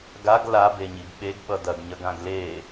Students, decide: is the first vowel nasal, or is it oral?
oral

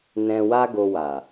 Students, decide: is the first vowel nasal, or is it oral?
nasal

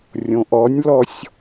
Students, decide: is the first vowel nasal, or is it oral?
nasal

